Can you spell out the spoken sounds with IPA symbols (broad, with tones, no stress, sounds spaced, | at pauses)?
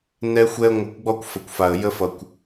n ɛ˦ xʷ ɛ˦ ə̯ ŋʷ ʌ˧ kʷ ɡ͡b ɔ˦ kʷ f ə˨ kʷ f a˨ ə̯ j ə˦ f ʌ˨ kʷ